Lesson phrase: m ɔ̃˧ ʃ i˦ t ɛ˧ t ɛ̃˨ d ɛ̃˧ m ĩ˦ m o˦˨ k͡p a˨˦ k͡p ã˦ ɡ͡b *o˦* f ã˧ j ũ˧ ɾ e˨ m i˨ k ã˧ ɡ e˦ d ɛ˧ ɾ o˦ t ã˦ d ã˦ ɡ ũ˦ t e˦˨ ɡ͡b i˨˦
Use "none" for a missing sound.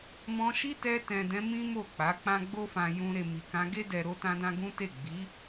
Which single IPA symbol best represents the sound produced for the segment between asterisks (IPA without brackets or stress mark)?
o˦